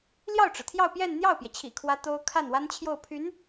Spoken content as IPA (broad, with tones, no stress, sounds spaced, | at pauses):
l j ɑ˥˩ ʊ̯ ʈ͡ʂ ɻ̩˩ t̪ʰ j ɑ˥˧ ʊ̯ p j ɛ˥˧ n n̪ j ɑ˥˩ ʊ̯ p j ɛ˩ t͡ɕʰ ḭ˨˩ kʰ w ä˥ t̪ o˥ ʊ̯ kʰ a˥˩ n w a˥ n t͡ɕʰ j o˥˩ ʊ̯ pʰ y˧˥ n